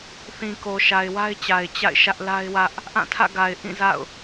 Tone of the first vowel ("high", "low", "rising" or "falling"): low